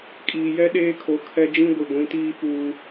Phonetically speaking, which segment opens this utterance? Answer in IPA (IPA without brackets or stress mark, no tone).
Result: kʼ